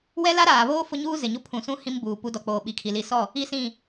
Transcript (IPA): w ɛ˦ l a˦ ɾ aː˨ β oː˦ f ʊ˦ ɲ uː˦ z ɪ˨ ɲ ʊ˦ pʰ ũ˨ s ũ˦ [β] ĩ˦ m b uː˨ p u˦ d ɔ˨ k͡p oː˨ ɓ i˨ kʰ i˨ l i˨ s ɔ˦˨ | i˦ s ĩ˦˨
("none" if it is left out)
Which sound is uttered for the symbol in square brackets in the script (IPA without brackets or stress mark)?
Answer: h